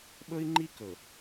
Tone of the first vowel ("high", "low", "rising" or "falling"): high